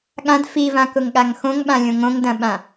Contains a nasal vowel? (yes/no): yes